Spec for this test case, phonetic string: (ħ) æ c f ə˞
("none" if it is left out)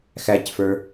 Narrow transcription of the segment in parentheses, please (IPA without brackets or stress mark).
x